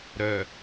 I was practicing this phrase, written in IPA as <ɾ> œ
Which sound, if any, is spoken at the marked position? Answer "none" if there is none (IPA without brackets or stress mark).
ɾ